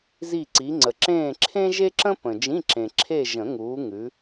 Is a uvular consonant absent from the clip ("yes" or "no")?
yes